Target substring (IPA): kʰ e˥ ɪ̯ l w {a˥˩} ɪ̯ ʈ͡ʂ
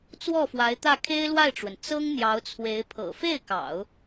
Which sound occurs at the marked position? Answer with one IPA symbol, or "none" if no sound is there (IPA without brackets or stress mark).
a˥˩